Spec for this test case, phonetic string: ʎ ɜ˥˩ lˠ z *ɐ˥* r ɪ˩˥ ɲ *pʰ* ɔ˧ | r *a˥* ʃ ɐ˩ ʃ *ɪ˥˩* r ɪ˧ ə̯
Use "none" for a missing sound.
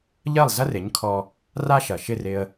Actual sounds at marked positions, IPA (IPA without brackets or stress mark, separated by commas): ɐ˥, kʰ, a˥, ɪ˥˩